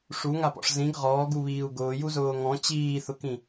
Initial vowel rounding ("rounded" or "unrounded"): rounded